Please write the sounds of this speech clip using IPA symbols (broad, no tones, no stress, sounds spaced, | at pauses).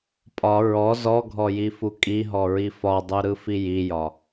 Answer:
pʼ ɒ ɹ ɔ z ɔ ɡʱ ɔ j i f u kʼ i ɦ ɔ ɹ i f ɒ dˤ u ɾ ɯ f i j i j ɒ